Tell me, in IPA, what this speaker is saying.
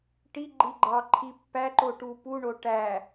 ʈ i ɡ͡ǃ i ɡ͡ǃ ɑ ǃʰ i pː æ ǃ o ʈ u p u ɳ o ʈ æ

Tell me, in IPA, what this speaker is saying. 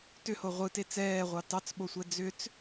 t ʏ h o ʁʷ ɯ t e t͡s ɛː ʁʷ ɑ t ɑ t͡s ɓ o sʷ ɛ d͡z ʏ t͡s

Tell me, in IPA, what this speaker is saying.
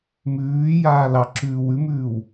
m ʉː j aː l ɑ ǁ ʉː w ʉ m ʉː w

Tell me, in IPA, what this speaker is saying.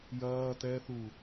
j ɐː t ɛ θ u

